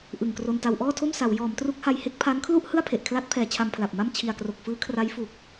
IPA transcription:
ʔɯ˨˩ŋkro˧nta˧w ʔɔː˥˩tʰo˥˩msa˩˦w jɔː˩˦mtru˦˥k̚ha˧j he˦˥k̚pʰa˦˥nkʰlu˥˩ʔ hɯ˥˩a̯pʰe˨˩ʔkʰla˦˥t̚pʰɛː˩˦ t͡ɕʰa˧mpʰla˨˩p̚ma˥˩m t͡ɕʰi˨˩a̯kro˨˩k̚fɯː˦˥kʰra˦˥j fu˨˩k̚

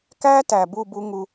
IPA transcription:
kæː˦ tæ˨bu˦˨bu˧ ŋu˧

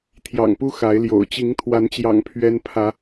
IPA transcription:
t̪ʰjɑ̰˨˩ŋpu˦ xa˨˦ɪ̯ljo̰˨˩ʊ̯ t͡ɕi˨˦ŋt̪ʰwa˨˦nt͡ɕjɑ̰˨˩ŋ pʰɥɛ˦npʰä˨˦

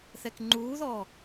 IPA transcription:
θɛkŋ͡ǃuːðɔ

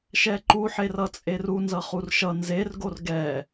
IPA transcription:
ʃɛǃuħerʌ t͡sʼeru nzʌχurʃʌ nzerɡor ɡɛ

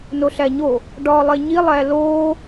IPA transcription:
noɬæɲo | ɖɒːlˠeɲi lˠæloː

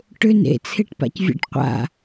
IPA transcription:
ʈʏ nḛt͡sʰeʈpa̰cvʲa̰ʈ qʷa̰

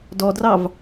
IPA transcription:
dɔdrɑv

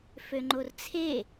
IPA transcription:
føŋ͡ǃort͡sʰe

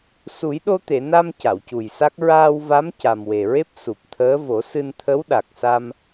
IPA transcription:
su˨˩˦jɗo˧t̪e˨˩˨na˧m ca˨˩˨wcu˨˩jsa˦˥k̚ ɹaː˧wva˧˥m ca˨˩mwe˨˩ɹe˦˥p̚ su˨˩p̚t̪ʰəː˧˥ vo˨˩˦sɨ˧n t̪ʰə˧˥wɗa˨˩k̚sa˧m

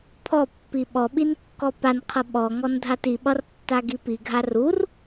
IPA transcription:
pʰɔpːi ɓɔɓin kːɔpanqʰʌ ɓɔŋɔn dʱatiɓʌr tːaɡipiɡʱa rur

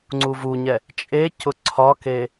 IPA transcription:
ŋ͡ǀuvuɲɛ | t͡ʃʼecʊ ǀʰɒke

